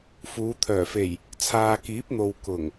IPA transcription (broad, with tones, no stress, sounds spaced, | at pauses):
f uː˨˧ t̪ʰ œː˨˩ f e˨˩ j | t͡sʰ aː˨ k iː˨˥ p̚ n̪ o˨ w k ʊ˨˩ ŋ